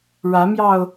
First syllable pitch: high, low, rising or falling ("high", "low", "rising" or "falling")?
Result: rising